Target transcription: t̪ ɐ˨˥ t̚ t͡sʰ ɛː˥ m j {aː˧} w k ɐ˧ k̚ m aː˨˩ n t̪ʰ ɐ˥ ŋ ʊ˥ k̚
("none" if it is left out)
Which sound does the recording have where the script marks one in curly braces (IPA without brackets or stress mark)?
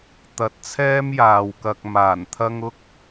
aː˨